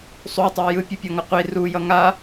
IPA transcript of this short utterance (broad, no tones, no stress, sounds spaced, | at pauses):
sˤ u tˤ ɛ j ɯ pʲ ɯ pʲ ʌ ŋ ʌ qʷ i r u j ʌ ŋ a